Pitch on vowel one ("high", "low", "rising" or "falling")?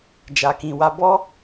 low